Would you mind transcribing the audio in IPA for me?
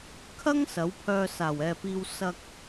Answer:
kʰ ɐ˥ ŋ s ɐ˨˥ w pʰ œː˧ s aː˨˩ w ɛː˨ p iː˧ w s ɐ˧ k̚

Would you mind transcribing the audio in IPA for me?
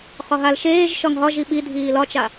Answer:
χ ɒ ɦ a l ʃ eː ʒ ʃ ɒ ŋ ɦ ɒ ʒ i ɓ i dʱ iː l ɒ t͡ʃ a

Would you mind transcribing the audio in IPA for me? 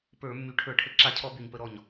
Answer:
p ə˞˧˩˧ mː y˨˩ ʈʰ ə˞˧˩˧ ʈʰ ə˧˩˧ ǁ a˧˩˧ cʰ ɔ˧˩˧ b y˨˩ ɲ p ə˧˩˧ ɾ ɔ˨˩ ɲ

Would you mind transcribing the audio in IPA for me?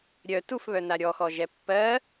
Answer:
ɾʲ œ t u f β œ n a ɾʲ ɔ x ɔ ʒ ɛ pː ɜ

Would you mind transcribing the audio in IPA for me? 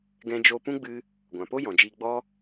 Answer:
ɡ ɛ̃˧ d͡ʒ oː˧ p ũ˦ ɡ͡b ɨ˧ | ɡʷ ã˨ p o˦ j ɔ̃˨ d͡ʒ iː˧ ɡ͡b ɔ˦

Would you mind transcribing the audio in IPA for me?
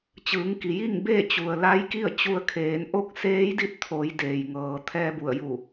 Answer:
t͡ɕ ɯː˩˧ ŋ k i˩ j i˥˨ ŋ b eː˥˨ t͡ɕ u˩ ə̯ l a˧˥ j k i˥˨ ə̯ t͡ɕ u˧ ə̯ kʰ eː˩˧ n ʔ o˥˨ k̚ s eː˧˥ j d i˥˨ t̚ t̪ʰ o˩˧ j d eː˩ j ŋ ɤː˩ t̪ʰ ɛː˧ b u˧˩ ə̯ j u˧˩

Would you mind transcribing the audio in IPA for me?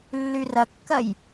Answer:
lː y r ɐ kː ɐ j

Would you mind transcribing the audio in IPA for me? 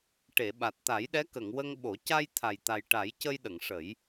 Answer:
ʈ e˨˩˨ ɓ a˨˩ t̚ t̪ a˨˩˦ j ɗ ɛ˧˥ k ə˨˩˨ ŋ w ə˧ ŋ ɓ o˨˩˦ c a˧ j t̪ʰ a˨˩ j t̪ a˨˩ j ʈ a˨˩˦ j c ə˧ j ɗ ə˨˩˨ ŋ ʂ ə˨˩˦ j

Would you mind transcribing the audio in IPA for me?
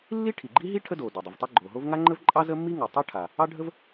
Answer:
lː i˥ ʈʰ i˩ ɡ͡ǃ i˥ ɦ i˥ ʈʰ ə˥ d o˩ d o˩ dˤ ə˩ v tˤ ə˥ ɡ͡ǃ o˩ ɦ o˥ v ŋ a˥ ŋ͡ǃ ə˥ v ǃʼ ɑ˥ z ə˥ mː i˥ ŋ o˩ tˤ ɑ˥ ʈʰ a˩ | ɑ˥ ɖʱ ə˥ v

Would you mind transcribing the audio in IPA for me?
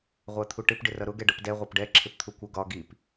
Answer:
ʁʷ æ t̪ʰ u ʈ ɪ p ɖ ɪ r ʌ ɾ ʊ ɡ ɛ ɖ ʌ p d ɛ ʁʷ ʌ p ɖ ɛ ǁʰ ɪ p t̪ʰ u kʷ ə ɡ ɒ ɡ i p

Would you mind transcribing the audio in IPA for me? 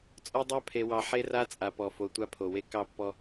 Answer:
t͡sʼ ɔ˦ dˤ ɑ˦ pʰ e˨ w ɑ˨ ħ e˦ r a˦ t͡sʼ a˨ p ɔ˨ f o˨ tʷ a˦ pʰ o˨ w e˦ k ɑ˦˨ pː ɔ˦

